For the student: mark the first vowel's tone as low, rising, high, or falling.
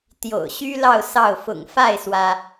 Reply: low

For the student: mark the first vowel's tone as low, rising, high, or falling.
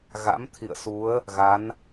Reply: rising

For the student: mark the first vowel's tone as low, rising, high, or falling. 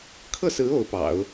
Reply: falling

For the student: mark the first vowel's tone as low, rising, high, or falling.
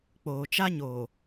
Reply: low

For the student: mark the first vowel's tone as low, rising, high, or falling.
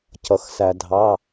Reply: low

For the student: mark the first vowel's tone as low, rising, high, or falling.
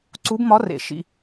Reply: rising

